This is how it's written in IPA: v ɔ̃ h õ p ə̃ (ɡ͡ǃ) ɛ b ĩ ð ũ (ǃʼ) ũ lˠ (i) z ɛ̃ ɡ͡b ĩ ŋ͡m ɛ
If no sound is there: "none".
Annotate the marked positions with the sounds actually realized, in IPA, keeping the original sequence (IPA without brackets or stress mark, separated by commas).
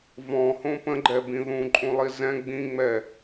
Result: ɡ͡ǃ, ǃʼ, i